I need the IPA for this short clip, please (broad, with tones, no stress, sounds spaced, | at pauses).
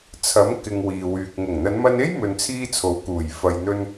t͡sʰ ɐ˨˥ m k ɪ˧ ŋ w iː˨ w yː˨ k̚ ŋ ʊ˨˩ ŋ n̪ ɐ˨˧ n m ɐ˧ n e˥ j m ɵ˧ n t͡sʰ iː˥ t͡sʰ o˨˥ w k uː˨˩ j f ɐ˨ j n̪ ɵ˧ n